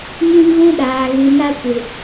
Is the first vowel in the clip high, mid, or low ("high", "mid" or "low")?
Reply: high